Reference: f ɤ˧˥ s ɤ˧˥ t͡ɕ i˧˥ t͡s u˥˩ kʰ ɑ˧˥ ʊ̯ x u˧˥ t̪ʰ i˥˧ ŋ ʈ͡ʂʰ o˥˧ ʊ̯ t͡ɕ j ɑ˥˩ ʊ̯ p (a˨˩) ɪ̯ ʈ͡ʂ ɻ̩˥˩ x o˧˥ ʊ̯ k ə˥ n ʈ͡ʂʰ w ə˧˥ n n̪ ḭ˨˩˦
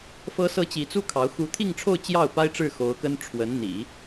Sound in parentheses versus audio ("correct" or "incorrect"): incorrect